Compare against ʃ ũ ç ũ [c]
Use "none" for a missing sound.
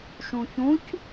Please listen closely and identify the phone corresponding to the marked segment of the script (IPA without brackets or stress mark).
c